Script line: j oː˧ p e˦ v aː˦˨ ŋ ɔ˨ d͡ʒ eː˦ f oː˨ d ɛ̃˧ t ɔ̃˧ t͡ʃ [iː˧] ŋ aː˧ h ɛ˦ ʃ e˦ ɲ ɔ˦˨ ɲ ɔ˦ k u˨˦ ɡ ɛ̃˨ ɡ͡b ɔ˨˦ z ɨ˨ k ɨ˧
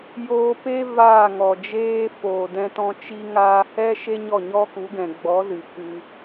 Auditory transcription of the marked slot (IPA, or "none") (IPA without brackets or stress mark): i˧